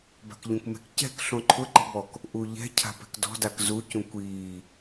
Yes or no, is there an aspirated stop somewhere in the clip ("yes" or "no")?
yes